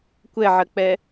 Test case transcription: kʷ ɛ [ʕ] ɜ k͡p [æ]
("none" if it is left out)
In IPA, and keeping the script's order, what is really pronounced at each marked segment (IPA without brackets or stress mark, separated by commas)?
ʕ, ɛ